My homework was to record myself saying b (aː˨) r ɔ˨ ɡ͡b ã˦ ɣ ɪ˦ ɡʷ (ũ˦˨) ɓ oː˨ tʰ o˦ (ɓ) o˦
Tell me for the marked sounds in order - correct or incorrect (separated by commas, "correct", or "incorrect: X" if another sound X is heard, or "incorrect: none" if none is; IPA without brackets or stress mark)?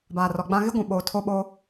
correct, incorrect: ũ˨, correct